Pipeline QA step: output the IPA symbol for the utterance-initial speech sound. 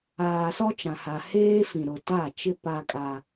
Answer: aː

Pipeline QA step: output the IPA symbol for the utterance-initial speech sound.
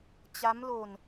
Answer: t͡ɕ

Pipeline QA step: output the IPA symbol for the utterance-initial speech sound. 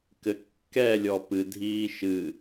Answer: k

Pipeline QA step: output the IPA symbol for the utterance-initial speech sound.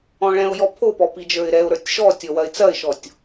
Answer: ɔ̃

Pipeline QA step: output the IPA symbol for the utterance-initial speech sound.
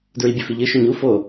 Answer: d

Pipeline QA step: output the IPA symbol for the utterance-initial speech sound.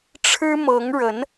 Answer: ʈ͡ʂʰ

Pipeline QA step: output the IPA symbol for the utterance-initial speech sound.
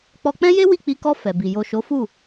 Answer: k͡p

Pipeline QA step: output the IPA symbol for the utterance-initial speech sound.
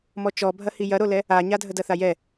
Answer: m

